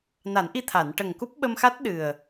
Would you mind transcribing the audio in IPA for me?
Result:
n a˨˩˦ n ʔ i˧ t̪ʰ a˨˩˨ n ʈ ə˨˩ ŋ k u˦˥ p̚ ɓ ə˧ m x a˦˥ t̚ ɗ ɨ˨˩ ə̯

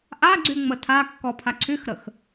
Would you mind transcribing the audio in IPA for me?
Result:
ʔ a ɡ͡ǀ y ŋ͡m ə tʰ a kː ɔ pʰ a ǀʰ y x ɾ ə x

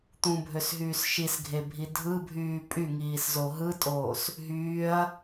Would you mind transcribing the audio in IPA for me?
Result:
t̪ ũ bʱ ø s ɦ yː s ʃ i s ɡʱ e bʱ i dʱ ɯ bʱ yː pʼ y ŋ iː s z o ɦ ɯ tʼ oː s | ɦ yː ɐ̯

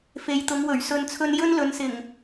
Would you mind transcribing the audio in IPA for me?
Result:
f e˨˧ j t̪ ʊ˨˧ ŋ w ɵ˨˩ ɥ s ɵ˨ n t͡sʰ ɵ˧ n j ɵ˥ n l ɵ˨˧ n s ɪ˨˩ ŋ

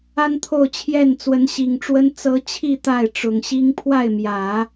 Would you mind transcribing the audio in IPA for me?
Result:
a˥ n t̪ʰ o˥˧ ʊ̯ t͡ɕʰ j ɛ˥˩ n t͡s w ə˧˥ n ɕ i˨˩ ŋ ʈ͡ʂ w ə˥ n t͡s ɤ˧˥ t͡ɕʰ i˥˧ t̪ a˥˩ ɪ̯ ʈ͡ʂ ʊ˨˩ ŋ ɕ i˥ ŋ pʰ w a˥˩ ɪ̯ m j ä˨˩˦

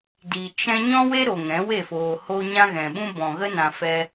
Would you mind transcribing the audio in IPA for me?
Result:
d i˨ t͡ʃ ɛ̃˧ ɲ ɔ̃˦ w e˦ ɾ o˨ ŋ ɛ̃˨˦ w e˦˨ f oː˨ h o˧ ɲ ã˧ ɣ ɛ̃˨ ɓ ũ˦ b ɔ̃˨ ɣ ə˦ n ã˧ f ɛ˦

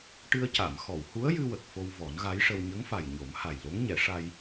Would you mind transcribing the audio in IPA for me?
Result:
ʈ ɨ˧ ə̯ c a˨˩˨ m x ɔ˨˩˨ w h u˧˥ ə̯ j ɨ˧ w ə˨˩ k̚ f o˧ w v ɔ˨˩˦ n ɣ a˧˥ j ʂ ə˧ w ɲ ə˧˥ ŋ f a˨˩ j ɲ o˨˩˦ m h a˨˩ j l o˧˥ ŋ ɲ ɛ˨˩˦ ʂ a˧ j

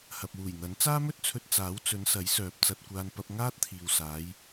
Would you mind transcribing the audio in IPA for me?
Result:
h ɐ˨ p̚ w uː˨˩ j n̪ ɐ˨˥ n t͡s aː˥ m ɵ˥ t̚ t͡sʰ ɵ˧ t̚ t͡s aː˨˥ w t͡s ɵ˨˧ n s ɐ˨˥ j s œː˨ p̚ t͡s ɐ˧ t̚ kʷ aː˧ n p ɐ˧ p̚ ŋ aː˥ t̚ t̪ʰ iː˨ w s aː˨˧ j

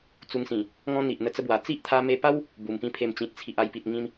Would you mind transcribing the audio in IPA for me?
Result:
t͡s u˧ ŋ s ĩ˨˩ | ŋ ɔ̃˦ n̪ i˨ ʔ n̪ ə˧ t͡s ə˦ b w a˨˩ t͡s i˦ ʔ t̪ʰ a˧ m e˧ p a˦ w | b u˨˩ m p ĩ˦ pʰ e˧ m t͡ɕ ĩ˨ t̚ t͡sʰ i˨ ʔ a˧ j p i˨ t̚ ŋ ĩ˧ m

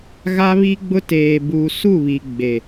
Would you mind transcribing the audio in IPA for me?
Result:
ɣ a˦ β i˦ ɡ͡b ʊ˦ t eː˨ b u˨ s u˦˨ β i˨ ɡ͡b e˨

